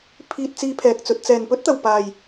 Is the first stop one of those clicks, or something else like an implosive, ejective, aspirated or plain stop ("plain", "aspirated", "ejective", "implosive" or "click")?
aspirated